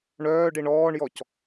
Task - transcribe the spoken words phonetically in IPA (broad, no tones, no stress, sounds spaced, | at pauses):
ɳ œː ɖ i ɳ ɔː ɳ j ɔ c